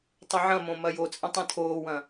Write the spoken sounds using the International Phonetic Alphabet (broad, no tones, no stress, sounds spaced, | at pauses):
tˤ ɘ ʕ ɐ̃ m õ m ɐ j o t͡sʼ ɐ̃ tˤ ẽ tʰ oː w ɐ̃